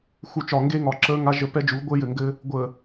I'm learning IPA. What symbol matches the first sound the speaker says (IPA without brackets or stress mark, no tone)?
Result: x